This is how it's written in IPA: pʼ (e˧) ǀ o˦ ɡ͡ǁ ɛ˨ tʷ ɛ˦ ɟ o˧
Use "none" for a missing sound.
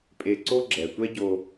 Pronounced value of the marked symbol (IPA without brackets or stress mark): e˧